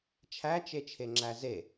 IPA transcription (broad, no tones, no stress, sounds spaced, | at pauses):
t͡ʃʰ æ t͡ʃ e t͡ʃʰ e ŋ͡ǁ æ z e